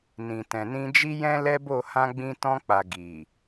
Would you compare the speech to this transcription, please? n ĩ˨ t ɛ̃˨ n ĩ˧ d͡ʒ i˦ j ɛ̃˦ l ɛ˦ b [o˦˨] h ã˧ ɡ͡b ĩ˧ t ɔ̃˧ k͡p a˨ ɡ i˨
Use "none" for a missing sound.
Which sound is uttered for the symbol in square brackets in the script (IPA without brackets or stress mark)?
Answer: o˦˨